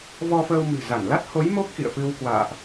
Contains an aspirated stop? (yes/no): no